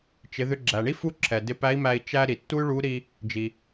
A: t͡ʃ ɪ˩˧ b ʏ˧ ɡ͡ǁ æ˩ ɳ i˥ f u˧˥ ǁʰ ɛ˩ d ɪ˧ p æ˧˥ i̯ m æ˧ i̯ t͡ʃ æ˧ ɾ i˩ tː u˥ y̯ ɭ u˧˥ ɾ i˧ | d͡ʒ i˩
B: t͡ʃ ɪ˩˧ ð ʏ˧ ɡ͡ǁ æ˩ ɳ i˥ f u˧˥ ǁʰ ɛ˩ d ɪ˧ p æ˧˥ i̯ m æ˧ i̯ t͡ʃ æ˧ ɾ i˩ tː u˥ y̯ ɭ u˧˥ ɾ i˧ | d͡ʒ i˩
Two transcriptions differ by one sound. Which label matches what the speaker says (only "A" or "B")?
B